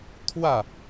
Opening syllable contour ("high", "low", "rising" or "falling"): falling